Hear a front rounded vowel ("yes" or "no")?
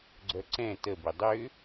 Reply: yes